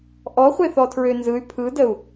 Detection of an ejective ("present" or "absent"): absent